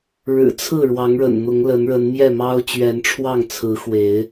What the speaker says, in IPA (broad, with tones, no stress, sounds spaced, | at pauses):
ɻ ɻ̩˨˩ t͡sʰ ɹ̩˥˨ ɻ w ɑ˨˦ ŋ ɻ ə̰˨˩ n n̪ ʊ˨˦ ŋ l ə˨˦ n ɻ ə˨˦ n m j ɛ˥˨ m ɑ˦ ʊ̯ t͡ɕ ɥ ɛ˨˦ n ʈ͡ʂʰ w ɑ˥˨ ŋ t͡sʰ ɹ̩˨˦ x w e˨˦ ɪ̯